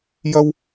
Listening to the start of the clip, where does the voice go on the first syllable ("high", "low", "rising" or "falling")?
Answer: high